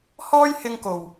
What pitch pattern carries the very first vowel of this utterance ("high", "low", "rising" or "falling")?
high